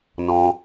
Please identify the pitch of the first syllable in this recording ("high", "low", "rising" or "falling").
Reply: high